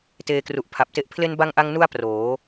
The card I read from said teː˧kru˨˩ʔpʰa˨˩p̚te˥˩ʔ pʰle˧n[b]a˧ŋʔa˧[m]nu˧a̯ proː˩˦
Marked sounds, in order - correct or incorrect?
correct, incorrect: ŋ

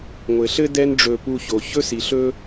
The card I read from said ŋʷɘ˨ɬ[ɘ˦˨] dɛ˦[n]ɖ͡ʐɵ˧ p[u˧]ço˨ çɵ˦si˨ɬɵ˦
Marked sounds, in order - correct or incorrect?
incorrect: ɘ˦, correct, correct

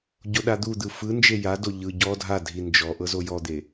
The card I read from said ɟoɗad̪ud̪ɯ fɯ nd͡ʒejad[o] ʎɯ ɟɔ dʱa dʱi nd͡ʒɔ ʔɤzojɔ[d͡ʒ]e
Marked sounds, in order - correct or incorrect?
correct, incorrect: d̪

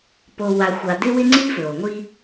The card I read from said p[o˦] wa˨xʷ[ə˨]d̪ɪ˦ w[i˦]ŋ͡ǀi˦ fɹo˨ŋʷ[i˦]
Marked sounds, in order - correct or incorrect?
incorrect: o˨, incorrect: a˨, incorrect: ɪ˦, correct

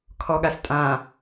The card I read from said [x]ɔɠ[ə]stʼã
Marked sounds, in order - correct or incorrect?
incorrect: kʰ, incorrect: a

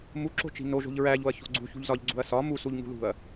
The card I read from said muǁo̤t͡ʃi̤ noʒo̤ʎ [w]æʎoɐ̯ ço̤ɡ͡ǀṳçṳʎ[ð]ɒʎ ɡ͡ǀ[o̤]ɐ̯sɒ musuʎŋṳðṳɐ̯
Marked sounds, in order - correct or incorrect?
incorrect: ɹ, incorrect: z, incorrect: ṳ

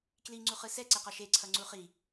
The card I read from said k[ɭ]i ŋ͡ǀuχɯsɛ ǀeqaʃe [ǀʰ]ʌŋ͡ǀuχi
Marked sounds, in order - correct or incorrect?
incorrect: l, correct

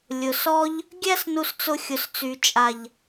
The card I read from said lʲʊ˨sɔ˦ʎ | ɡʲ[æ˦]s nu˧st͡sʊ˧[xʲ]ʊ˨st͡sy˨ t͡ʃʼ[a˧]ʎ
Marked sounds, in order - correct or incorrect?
correct, correct, incorrect: a˨

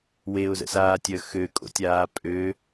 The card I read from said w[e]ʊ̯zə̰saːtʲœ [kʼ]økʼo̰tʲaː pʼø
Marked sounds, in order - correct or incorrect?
correct, incorrect: x

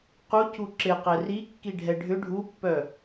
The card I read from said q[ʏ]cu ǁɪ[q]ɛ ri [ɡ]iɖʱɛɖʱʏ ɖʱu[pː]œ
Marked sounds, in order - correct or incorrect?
incorrect: u, correct, incorrect: kː, correct

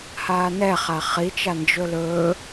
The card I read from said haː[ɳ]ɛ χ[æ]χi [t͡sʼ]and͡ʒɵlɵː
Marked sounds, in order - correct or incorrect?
incorrect: n, incorrect: a, incorrect: t͡ʃ

